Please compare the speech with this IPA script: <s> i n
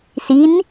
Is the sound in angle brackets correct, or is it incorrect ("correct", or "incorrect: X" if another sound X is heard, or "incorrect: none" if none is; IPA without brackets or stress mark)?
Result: correct